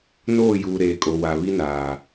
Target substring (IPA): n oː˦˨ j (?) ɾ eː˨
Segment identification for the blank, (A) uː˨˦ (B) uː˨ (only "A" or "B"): B